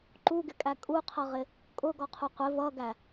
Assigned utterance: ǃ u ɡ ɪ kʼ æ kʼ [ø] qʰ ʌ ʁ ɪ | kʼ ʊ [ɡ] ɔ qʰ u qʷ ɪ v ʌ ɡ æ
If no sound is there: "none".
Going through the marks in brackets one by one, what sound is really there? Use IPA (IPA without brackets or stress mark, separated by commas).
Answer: u, ɡ